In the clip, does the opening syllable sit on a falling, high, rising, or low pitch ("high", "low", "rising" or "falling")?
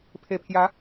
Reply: low